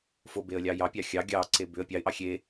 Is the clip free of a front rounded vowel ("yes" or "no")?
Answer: no